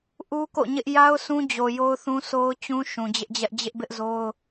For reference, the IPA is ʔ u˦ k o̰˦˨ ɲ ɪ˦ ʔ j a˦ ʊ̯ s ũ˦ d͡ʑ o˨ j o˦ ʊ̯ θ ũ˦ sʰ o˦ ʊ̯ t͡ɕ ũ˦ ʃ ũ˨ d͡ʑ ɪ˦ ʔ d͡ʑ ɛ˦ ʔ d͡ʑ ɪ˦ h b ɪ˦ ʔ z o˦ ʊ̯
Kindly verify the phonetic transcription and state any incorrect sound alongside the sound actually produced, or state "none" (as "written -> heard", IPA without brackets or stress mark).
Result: h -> ʔ